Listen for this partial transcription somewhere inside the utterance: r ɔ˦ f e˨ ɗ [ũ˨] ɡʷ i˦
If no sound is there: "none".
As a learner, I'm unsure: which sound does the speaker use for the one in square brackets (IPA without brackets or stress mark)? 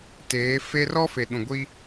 ũ˨